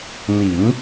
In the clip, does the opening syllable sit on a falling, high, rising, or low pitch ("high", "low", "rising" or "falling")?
low